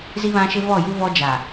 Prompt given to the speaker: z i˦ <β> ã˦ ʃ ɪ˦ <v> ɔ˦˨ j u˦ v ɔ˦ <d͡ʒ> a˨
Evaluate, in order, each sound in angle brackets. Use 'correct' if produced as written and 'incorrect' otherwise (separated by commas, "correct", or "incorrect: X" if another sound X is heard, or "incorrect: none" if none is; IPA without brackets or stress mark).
correct, correct, correct